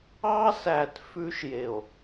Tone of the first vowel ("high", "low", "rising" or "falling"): high